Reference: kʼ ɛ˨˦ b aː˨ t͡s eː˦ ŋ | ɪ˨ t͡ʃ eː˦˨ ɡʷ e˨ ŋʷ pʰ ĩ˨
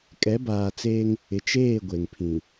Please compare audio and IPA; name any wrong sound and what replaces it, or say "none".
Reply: ŋʷ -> ŋ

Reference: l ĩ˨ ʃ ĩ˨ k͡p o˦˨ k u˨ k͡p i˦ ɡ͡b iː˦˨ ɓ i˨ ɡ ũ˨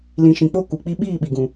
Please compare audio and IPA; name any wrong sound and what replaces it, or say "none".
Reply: ɡ͡b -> ɓ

